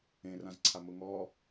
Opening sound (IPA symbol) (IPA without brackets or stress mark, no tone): ẽ